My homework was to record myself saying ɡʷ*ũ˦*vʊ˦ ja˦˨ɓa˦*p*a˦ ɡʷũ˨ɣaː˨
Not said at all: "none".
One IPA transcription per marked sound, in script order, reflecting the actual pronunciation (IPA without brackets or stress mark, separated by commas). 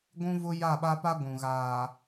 ũ˦, p